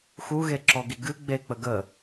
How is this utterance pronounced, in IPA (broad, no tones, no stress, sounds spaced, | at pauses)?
x u ɣ e ǁ ɔ ɡ i ɡ ɨ ɡ͡b e k͡p ə ɡ ə